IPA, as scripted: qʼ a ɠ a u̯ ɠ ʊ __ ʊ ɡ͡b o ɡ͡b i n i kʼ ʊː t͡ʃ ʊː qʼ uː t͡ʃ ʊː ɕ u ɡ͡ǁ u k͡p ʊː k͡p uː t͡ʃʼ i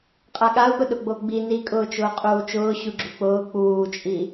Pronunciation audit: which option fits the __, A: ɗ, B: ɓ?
A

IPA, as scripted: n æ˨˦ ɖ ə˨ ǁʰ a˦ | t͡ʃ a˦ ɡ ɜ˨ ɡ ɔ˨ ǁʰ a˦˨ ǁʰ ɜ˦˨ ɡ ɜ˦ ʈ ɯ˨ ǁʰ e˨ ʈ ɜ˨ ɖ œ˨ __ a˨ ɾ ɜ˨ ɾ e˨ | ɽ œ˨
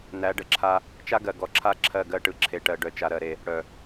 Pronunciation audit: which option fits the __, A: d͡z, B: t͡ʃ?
B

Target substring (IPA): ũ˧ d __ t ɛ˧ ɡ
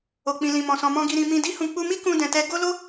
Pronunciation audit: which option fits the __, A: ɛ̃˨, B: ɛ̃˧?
A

